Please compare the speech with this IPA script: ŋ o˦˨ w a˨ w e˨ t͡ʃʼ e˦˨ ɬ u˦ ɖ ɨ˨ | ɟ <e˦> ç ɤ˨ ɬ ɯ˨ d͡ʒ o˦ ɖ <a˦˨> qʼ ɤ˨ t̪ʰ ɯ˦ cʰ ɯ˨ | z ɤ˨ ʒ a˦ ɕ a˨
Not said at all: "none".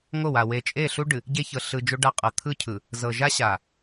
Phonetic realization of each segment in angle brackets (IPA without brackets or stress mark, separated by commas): e˦, a˦˨